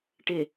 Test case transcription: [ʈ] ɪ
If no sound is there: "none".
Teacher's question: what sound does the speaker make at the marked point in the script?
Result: ʈ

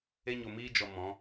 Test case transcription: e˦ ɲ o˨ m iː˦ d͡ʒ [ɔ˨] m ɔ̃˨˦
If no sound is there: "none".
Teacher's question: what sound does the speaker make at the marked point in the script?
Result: ɔ˨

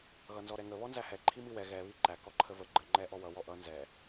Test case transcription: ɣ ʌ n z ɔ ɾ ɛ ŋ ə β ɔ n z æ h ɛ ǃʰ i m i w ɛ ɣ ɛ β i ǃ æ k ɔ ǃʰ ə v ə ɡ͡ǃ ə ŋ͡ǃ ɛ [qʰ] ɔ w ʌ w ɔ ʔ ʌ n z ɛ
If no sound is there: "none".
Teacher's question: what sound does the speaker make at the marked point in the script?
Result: ʔ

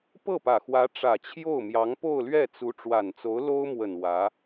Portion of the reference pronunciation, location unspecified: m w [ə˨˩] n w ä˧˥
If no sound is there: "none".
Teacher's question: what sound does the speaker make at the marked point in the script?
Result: ə˨˩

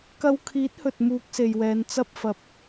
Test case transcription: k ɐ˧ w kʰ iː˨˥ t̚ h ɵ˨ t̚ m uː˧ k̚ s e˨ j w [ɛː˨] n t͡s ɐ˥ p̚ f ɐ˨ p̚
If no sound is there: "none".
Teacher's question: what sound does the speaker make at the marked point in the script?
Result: ɛː˨˧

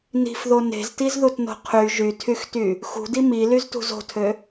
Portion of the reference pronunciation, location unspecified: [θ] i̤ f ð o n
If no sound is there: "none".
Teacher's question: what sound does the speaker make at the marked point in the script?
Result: n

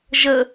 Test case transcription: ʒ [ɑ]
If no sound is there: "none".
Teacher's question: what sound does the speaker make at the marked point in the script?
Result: ə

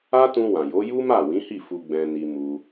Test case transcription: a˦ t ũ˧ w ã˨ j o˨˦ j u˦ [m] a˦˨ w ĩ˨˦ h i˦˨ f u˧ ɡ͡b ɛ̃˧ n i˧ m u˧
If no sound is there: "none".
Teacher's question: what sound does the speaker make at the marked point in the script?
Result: m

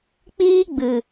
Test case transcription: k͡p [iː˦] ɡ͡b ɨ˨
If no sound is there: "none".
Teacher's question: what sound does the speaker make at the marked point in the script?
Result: iː˦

